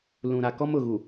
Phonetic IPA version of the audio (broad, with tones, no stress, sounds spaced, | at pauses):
l ũ˨ ɾ a˨ k ɔ˦ m ʊ˨ ɣ u˨